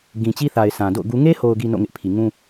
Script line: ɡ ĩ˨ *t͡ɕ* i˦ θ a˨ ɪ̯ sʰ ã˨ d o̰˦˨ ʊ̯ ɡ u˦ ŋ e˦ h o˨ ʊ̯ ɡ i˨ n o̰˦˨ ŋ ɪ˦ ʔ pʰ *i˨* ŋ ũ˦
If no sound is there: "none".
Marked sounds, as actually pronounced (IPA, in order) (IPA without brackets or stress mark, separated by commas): t͡ɕ, i˨